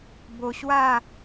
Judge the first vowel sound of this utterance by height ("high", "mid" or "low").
mid